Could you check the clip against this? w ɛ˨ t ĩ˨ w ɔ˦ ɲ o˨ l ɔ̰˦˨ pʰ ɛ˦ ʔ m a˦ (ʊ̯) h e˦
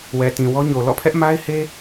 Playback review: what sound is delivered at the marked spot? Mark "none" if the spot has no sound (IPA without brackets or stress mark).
ɪ̯